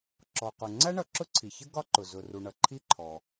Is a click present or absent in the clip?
present